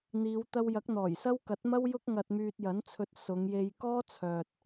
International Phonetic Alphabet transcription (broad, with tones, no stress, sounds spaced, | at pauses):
n̪ iː˨˧ w t̪ ɐ˧ w j ɐ˨˥ k̚ n̪ ɔː˨˩ j s ɐ˥ w k ɐ˨˥ t̚ m ɐ˥ w j ʊ˥ k̚ ŋ ɐ˧ t̚ m yː˧ t̚ j ɐ˨˥ n t͡sʰ ɵ˧ t̚ s ʊ˨˧ ŋ j e˧ j k ɔː˥ t͡sʰ œː˨ t̚